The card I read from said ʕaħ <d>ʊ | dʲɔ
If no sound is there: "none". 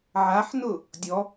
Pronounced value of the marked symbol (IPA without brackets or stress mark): n